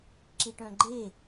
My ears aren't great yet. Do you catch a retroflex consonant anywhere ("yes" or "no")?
yes